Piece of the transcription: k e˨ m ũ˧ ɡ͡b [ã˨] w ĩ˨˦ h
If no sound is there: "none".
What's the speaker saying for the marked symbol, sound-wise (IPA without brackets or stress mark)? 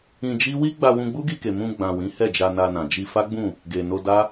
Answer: ã˨